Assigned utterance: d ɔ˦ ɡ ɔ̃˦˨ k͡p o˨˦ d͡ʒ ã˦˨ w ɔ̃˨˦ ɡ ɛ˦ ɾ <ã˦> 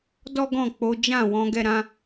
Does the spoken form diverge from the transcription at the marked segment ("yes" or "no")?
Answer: no